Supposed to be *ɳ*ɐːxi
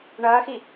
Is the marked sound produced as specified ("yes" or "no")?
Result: yes